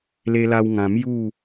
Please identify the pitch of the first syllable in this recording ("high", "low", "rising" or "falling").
high